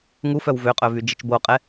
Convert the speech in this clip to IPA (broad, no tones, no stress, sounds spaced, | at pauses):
ŋ u f œ w v ø qʼ œ v y d͡ʒ i t͡ʃ b o qʼ ɛ